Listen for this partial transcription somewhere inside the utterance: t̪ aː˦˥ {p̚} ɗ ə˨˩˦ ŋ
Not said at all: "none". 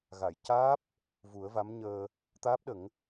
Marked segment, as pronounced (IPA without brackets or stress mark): p̚